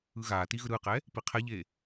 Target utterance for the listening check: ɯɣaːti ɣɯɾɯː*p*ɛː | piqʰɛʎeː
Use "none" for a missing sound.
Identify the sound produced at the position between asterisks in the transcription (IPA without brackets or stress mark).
q